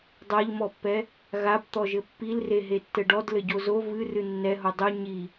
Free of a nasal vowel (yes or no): yes